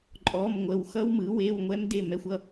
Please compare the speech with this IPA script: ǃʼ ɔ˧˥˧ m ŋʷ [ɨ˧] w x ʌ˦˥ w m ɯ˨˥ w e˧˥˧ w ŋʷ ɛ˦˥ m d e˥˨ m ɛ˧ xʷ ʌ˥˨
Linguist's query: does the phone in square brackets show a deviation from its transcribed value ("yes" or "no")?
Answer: yes